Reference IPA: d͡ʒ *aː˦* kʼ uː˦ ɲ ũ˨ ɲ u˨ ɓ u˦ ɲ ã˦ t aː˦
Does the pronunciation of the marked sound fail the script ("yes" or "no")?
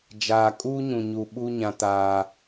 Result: yes